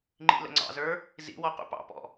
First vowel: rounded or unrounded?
unrounded